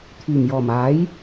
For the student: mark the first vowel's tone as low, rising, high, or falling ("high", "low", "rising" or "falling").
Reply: low